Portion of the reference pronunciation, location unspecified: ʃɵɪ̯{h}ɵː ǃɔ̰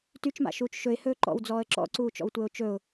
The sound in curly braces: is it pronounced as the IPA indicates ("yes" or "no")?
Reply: yes